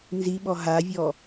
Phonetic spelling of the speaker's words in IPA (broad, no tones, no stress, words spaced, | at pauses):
nziɓɔ ɦavʲɔ